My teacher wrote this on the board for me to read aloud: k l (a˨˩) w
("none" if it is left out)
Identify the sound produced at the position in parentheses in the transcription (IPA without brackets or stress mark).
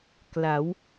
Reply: a˩˦